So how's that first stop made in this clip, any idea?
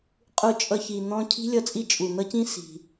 ejective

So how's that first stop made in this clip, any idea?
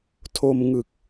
aspirated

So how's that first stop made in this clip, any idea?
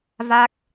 plain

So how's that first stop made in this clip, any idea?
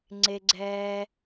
click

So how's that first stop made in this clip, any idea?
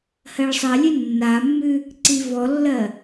click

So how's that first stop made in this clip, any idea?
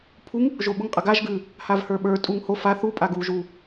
aspirated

